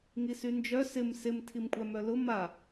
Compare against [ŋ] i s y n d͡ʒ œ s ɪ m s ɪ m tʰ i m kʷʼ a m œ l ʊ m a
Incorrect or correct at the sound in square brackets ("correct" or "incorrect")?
correct